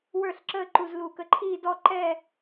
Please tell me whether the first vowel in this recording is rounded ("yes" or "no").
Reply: no